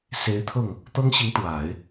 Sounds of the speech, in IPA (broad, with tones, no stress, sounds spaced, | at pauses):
s e˧˥ ɪ̯ t̪ʰ ɤ˥˩ ŋ | t̪ ɤ˥ ŋ ɕ i˧˥ ŋ t̪ w a˨˩˦ ɪ̯